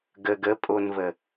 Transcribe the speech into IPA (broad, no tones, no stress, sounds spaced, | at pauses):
ɡ ə ɡ ə pʼ o n v ə